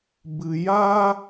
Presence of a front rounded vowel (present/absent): absent